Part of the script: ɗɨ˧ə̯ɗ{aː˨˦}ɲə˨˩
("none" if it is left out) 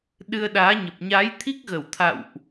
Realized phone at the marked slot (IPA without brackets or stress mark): aː˨˦